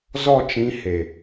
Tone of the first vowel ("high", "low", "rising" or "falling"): falling